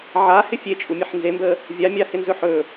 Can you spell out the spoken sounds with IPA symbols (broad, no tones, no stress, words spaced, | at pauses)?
ʕahɪ fʲet͡ʃʼumʲəħ nzembə | vʲamʲahɪnzɵ ħɵ